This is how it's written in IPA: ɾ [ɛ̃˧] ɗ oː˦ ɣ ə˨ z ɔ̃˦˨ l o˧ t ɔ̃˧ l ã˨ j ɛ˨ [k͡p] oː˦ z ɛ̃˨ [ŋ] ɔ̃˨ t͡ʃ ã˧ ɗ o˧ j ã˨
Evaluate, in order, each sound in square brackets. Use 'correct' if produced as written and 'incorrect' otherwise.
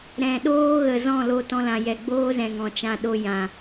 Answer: incorrect, incorrect, correct

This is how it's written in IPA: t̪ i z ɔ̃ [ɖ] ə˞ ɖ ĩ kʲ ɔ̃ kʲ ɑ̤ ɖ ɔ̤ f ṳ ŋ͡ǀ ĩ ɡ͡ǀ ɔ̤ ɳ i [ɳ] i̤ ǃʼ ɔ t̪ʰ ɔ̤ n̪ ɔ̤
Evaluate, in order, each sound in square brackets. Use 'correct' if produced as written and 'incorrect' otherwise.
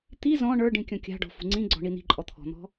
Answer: incorrect, incorrect

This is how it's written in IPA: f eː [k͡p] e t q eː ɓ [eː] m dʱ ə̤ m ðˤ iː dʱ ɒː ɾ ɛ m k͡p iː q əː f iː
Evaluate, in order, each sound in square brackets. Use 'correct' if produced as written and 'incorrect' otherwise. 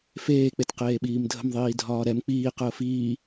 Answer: correct, incorrect

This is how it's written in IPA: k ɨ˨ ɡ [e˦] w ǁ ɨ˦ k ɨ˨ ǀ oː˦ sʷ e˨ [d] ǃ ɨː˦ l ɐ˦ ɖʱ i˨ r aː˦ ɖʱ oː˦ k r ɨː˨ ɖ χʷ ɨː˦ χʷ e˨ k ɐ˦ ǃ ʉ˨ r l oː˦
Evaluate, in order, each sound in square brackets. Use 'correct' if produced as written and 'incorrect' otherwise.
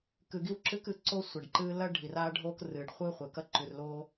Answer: incorrect, incorrect

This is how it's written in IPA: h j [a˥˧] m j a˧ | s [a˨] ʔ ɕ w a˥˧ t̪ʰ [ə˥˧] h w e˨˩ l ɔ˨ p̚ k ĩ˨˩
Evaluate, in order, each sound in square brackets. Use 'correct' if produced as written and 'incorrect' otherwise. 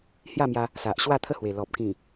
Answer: correct, correct, correct

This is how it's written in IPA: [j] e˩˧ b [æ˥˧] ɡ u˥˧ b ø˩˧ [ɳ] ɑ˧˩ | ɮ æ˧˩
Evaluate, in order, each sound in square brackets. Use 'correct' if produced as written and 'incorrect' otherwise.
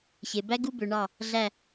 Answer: incorrect, incorrect, correct

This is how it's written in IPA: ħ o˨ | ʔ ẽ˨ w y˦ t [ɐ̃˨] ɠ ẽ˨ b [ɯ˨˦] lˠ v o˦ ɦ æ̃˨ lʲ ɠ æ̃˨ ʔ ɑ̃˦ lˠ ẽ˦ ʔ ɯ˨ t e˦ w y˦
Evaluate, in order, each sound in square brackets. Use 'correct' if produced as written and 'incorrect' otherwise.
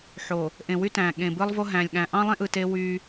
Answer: incorrect, incorrect

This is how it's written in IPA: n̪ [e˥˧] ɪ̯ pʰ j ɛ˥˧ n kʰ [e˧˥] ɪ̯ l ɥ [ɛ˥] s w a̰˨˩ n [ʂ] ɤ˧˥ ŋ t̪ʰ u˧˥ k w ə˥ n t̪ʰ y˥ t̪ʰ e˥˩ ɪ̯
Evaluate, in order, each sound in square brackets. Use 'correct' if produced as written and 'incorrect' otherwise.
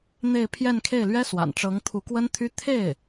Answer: correct, incorrect, correct, incorrect

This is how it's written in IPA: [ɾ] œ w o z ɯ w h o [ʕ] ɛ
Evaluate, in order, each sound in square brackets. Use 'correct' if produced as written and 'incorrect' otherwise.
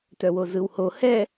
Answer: incorrect, incorrect

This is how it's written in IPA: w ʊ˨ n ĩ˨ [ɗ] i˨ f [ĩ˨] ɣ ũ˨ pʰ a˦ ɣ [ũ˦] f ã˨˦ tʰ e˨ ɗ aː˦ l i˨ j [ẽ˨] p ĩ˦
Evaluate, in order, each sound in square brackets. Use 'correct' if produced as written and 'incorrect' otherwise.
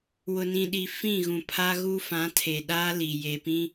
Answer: correct, incorrect, incorrect, incorrect

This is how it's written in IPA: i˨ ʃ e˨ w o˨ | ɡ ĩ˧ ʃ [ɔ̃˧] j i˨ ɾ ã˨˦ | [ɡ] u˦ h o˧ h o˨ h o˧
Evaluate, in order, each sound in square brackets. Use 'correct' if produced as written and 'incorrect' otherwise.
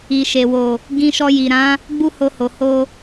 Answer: incorrect, incorrect

